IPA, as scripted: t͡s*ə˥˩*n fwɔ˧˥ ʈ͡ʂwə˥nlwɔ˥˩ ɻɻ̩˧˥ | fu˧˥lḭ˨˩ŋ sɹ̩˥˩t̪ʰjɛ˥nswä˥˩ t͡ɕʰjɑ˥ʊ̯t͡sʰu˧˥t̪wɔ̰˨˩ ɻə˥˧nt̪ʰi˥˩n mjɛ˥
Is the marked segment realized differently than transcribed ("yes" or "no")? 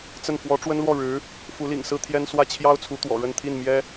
no